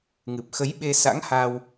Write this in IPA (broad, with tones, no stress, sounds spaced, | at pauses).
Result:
ŋ ɨ˨˩ p̚ x ə˨˦ j ɓ e˧ s a̰˧˥ ŋ h a˧ w